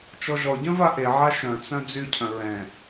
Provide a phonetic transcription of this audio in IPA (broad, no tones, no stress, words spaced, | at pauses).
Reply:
t͡ʃɔʒɔɟœ̃ vaʔeʕa ʃœ̃t͡sœ̃ d͡zycʰœ̃ ɹɛ̃